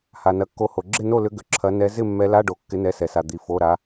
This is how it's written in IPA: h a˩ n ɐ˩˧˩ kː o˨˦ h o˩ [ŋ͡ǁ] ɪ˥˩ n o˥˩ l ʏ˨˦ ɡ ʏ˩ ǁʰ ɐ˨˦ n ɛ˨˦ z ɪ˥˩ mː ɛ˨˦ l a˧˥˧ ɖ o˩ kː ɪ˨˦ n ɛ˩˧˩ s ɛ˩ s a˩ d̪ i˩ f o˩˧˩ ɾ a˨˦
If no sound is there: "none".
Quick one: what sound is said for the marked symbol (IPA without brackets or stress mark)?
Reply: ɡ͡ǁ